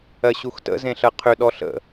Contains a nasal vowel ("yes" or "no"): yes